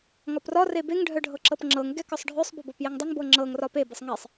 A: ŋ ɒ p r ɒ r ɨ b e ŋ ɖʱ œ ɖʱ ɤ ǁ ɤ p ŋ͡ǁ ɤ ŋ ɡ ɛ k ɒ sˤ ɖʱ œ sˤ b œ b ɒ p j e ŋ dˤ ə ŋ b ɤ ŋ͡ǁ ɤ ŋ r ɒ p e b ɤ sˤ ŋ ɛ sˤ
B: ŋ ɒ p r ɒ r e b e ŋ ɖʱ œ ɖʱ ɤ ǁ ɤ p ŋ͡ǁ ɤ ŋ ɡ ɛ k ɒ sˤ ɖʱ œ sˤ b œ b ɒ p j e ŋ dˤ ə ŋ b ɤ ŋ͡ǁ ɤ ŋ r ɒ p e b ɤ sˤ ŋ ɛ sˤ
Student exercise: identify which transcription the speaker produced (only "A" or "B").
B